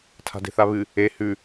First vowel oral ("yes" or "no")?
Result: yes